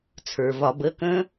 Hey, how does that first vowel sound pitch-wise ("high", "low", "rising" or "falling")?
low